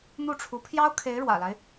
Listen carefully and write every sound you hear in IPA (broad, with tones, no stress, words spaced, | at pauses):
n̪u˥˩ʈ͡ʂʰu˧˥ pʰjɑ˥ʊ̯kʰe˧˥ɪ̯ ɻwä̰˨˩la˦ɪ̯